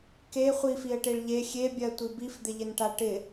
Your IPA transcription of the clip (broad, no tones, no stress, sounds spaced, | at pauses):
k e χʷ i f i ə̯ ʈ e ɭ ʎ e xʲ e bʲ ɜ tʷ i b i f d̪ ɪ ʎ ɪ n ʈ a ʈ ɪ